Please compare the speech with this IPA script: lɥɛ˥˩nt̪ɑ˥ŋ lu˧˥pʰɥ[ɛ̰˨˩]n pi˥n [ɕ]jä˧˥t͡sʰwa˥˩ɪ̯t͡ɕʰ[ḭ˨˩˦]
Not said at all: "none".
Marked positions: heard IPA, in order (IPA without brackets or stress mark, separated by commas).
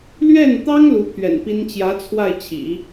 ɛ̰˨˩, t͡ɕ, ḭ˨˩˦